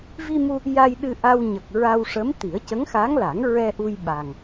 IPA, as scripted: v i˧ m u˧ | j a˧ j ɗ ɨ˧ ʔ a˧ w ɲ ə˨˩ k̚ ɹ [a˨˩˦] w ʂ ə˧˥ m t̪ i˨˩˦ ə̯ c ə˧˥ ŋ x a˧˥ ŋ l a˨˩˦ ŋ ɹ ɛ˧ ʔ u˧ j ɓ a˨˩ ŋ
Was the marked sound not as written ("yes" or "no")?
yes